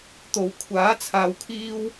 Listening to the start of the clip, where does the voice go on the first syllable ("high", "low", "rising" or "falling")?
low